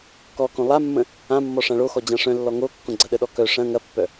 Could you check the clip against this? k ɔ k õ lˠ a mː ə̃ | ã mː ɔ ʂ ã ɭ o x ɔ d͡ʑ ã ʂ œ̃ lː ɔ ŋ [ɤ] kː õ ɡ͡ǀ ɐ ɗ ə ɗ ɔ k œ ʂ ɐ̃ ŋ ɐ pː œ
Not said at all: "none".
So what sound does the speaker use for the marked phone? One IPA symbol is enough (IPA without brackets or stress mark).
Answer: o